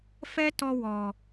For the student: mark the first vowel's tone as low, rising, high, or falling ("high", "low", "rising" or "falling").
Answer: high